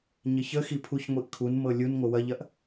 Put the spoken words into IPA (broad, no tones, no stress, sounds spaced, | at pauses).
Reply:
ɲ ɪ ç ə x i pʰ u ç ŋʷ i ʔ kʰ u n m ɤ lʲ u n ŋʷ ɪ w ɐ ʎ ɐ ʔ